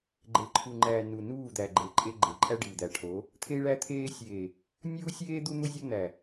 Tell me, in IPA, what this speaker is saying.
ɡ͡ǃ e˨ ǃʰ u˨ ŋ͡ǃ æ˨ n u˨ n uː˦˨ d̪ æ˨ ɡ͡ǃ e˨ ǃʼ e˦ ɡ͡ǃ e˨ ǃʼ æ˦ ɖ iː˨ d̪ æ˨ ʈʰ o˨˦ | t̪ʰ e˦ i̯ ɭ æ˦ t̪ʰ eː˦ sʲ eː˨ | nʲ uː˦ sʲ eː˦ d̪ u˦ n̪ u˦ zʲ ɒ˦ n̪ æ˨

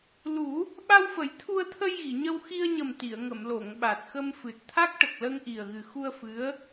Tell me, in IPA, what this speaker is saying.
l u˨˩˦ | ɓ a˧ w f ə˨˩˦ j t̪ʰ u˧ ə̯ t̪ʰ ə˧ j ɣ i˨˩˨ ɲ ə˧ w x i˧ ə̯ ɲ ə˨˩ m t̪ i˨˩˨ ə̯ ŋ ə˨˩˨ m l o˨˩˨ ŋ ɓ a˨˩ t̚ x ə˧ m f ɨ˨˩ t̚ t̪ʰ a˦˥ k̚ ʈ ə˨˩ k̚ l ə˧ ŋ ʔ i˨˩ ə̯ ɣ ɨ˨˩ x u˧ ə̯ f ɨ˧˥ ə̯

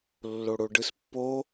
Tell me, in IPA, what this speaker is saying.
lː o ɽ o ɖ ɯ s pː o

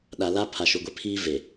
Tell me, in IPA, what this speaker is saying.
ɗ a˨ l a˦ pʰ a˨ ʃ u˨ ɡʷ e˦ pʰ iː˦ v e˨

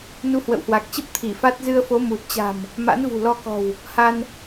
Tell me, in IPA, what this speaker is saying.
n u˧ h w ə̰˧˨ w h w a˨˩ k̚ t͡ɕ ə˦˥ p̚ t̪ʰ i˧˩ f a˦˥ t̚ z ɨ˧ ə̯ f o˨˦ m u˨˩ t̚ t͡ɕ a̤˨˩ m | m a̰˧˥ n v ṳ˨˩ l ɔ˧ k ɔ̤˨˩ w | h a˧ n

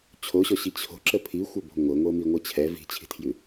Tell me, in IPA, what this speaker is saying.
t͡ɕʰ o ɕ ɔ ɕ i t͡ɕʰ o̤ ǁ ə pʰ i xʷ ə b o̤ ŋʷ ɤ ŋʷ ɤ m i ŋʷ ɤ t͡ɕʰ ɛ v i̤ t͡ɕʰ i̤ tʰ j ʉ

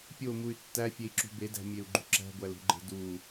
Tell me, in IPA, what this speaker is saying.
pʲ o m u y̯ tː æ fʲ e i̯ ǁ ṳ b e d æ̤ mʲ e u̯ ɡ͡ǃ ṳ ǁ æ̤ ɡʷ æ l ṳ ɡ͡ǃ e̤ d u

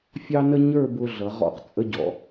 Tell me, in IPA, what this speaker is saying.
fʲ ɑ˥ n ə˥ ɲ ə˞˥˧ b ʊ˧ ɮ ʌ˩˧ ʁ ɔ̰˧ q t͡sʼ ə˧ ɟ ɔ̰˩˧

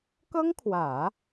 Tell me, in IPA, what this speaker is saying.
k ɤ˥ ŋ kʰ w ä˨˩˦

